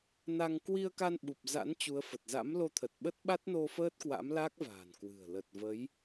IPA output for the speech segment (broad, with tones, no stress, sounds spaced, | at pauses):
n a˧ ŋ k w i˧ ə̯ k a˧ n ɓ u˨˩ p̚ z a̰˧˥ n t͡ɕ u˨˦ ə̯ f ə˨˩ t̚ z a̰˧˥ m l o˧ t̪ʰ ə˨˩ t̚ ɓ ə˦˥ t̚ ɓ a˦˥ t̚ n o˧ f əː˦˥ t̚ k w a̰˧˥ m l a˦˥ k̚ v a̤ː˨˩ n k w ɨ̤˨˩ ə̯ l ə˨˩ t̚ v ə˨˦ j